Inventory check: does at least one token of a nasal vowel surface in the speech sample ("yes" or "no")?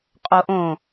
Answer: yes